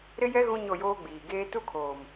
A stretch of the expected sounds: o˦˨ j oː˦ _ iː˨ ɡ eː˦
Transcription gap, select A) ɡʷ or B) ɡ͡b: B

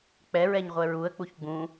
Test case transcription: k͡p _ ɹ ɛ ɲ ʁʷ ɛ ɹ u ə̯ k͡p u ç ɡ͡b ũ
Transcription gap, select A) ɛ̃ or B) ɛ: B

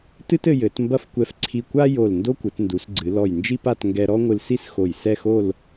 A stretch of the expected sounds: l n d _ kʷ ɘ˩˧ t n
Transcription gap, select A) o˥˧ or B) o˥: B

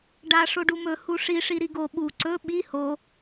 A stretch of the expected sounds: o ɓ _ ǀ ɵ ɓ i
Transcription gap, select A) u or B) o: A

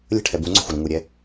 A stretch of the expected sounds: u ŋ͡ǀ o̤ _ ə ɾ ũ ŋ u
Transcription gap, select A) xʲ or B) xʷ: B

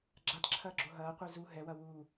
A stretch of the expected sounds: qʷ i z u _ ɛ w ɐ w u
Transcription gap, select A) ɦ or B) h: A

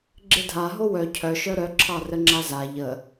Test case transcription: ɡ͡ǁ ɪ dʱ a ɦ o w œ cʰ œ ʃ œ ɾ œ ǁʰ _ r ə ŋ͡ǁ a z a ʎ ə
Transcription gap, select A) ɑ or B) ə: A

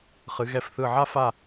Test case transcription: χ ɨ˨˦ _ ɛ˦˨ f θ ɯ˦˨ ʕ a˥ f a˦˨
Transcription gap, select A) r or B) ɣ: B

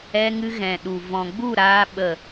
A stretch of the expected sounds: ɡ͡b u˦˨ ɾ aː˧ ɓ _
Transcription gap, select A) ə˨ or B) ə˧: A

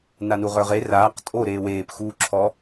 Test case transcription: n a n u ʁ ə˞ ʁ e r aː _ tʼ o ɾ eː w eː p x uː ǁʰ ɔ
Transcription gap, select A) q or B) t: A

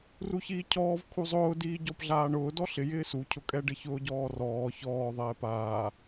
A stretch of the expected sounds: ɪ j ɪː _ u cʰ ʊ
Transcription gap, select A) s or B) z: A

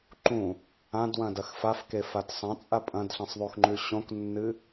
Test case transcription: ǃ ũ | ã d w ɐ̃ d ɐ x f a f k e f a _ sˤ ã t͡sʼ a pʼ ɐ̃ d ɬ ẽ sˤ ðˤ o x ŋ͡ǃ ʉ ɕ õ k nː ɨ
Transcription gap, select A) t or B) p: A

